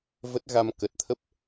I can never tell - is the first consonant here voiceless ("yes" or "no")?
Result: no